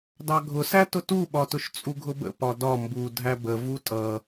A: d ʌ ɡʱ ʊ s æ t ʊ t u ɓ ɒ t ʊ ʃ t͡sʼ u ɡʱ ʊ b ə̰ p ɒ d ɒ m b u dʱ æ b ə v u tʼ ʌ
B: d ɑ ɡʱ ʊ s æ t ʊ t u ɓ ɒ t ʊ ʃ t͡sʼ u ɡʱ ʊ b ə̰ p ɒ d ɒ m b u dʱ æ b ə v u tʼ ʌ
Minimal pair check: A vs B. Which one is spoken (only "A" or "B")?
B